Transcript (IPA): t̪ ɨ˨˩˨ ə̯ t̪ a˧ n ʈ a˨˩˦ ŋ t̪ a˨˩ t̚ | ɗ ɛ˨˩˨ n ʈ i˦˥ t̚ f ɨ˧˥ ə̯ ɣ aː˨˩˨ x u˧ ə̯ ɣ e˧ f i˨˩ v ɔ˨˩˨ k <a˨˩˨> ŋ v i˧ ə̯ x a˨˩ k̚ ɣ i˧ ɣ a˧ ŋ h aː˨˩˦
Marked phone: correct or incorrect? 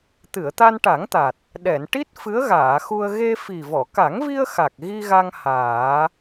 incorrect